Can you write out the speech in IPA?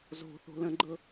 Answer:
zo̤ θo̤lə̃ɡ͡ǃɤ

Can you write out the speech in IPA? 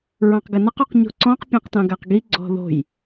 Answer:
ɹɑ̃qɡənəq uqɲo̤ǀɔ̃q pʲãqtɑ̃ɡaqɡi ɡ͡ǀɔ̤ðo̤j

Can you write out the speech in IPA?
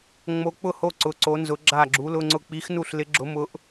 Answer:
ŋ͡mo˧˥k͡pʊ˥˨ho˥˨ ǀʊ˧˥ǀo˧˥nzʊ˧˥ ɡ͡ǁa˥˨ɡ͡ǁu˧˥lʊ˧˥˧ŋ͡ǀʊ˥˨ k͡pi˧˥xnu˥˨ɬlɪ˧˥ ɡ͡ǁʊ˧˥mʊ˧˥ʔ

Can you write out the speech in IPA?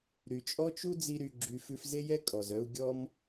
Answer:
ɾy˨t͡ʃʼɔ˦t͡ʃu˦ d͡zi˦ɾy˧ɡ͡ǁy˧ fʉ˧fze˦jɛ˦ kʼɔ˨zœ˦u̯ ɡʲɔ˦m

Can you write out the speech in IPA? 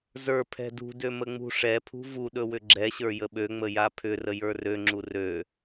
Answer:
zə˞ pʰɛ̤dṳdø məŋ͡mṳʂɛpʰṳ vuɗɵ wʏɡ͡ǁɛɕə˞ jəɓøŋ͡mə japʰʏrə jə˞røŋ͡ǁu rø

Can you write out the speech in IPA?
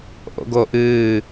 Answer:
ʔo̰ɡoʔɨː

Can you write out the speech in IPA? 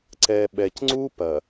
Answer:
ǀɛ˨ɓɛ˨cŋ͡ǀu˦ pɐ˨

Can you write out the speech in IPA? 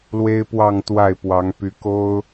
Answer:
lwe˥ɪ̯pwɑ˥˧ŋ t̪wa˥˩ɪ̯pwɑ˧˥ŋ py˧˥ko˥ʊ̯

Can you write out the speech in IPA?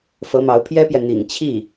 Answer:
fɤ˧˥mɑ˧˥ʊ̯pʰjɛ˥pjɛ˨ n̪ḭ˨˩ŋt͡ɕʰi˥˩

